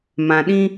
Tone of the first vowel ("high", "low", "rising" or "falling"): low